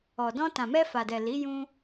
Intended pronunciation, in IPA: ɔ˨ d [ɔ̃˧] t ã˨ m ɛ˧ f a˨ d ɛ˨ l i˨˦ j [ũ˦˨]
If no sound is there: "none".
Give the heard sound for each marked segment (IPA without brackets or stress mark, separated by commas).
ɔ̃˧, ũ˦